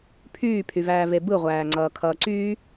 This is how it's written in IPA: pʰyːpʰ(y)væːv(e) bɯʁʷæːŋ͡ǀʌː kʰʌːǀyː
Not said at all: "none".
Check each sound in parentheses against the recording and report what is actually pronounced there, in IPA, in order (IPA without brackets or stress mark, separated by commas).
y, e